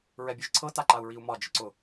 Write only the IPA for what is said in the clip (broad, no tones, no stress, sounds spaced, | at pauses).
ɹ ɛ bʲ ɛ ʒ ǀʰ ɤ t a ǃ a u̯ ɹ i u̯ m ɒ d͡ʒ ɪ ǀ ʊ